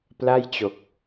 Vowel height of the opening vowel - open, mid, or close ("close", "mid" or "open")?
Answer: open